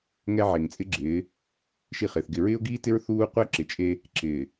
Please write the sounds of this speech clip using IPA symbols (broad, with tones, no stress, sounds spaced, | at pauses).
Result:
ŋ ɛ˦ ʕ e˨ ŋ t͡sʼ ɪ˦ ɡ͡ǁ ɪː˨˦ | ʃ i˦˨ χ ɪː˨ θ ɡ ɪ˨ ɹ ɪː˦ ʊ̯ ɡ iː˦ t ɪ˦ ɹ θ uː˦ qʷ ɛ˦ ǁ ɪ˨ t͡ʃʼ e˦ | ǁ ɪː˨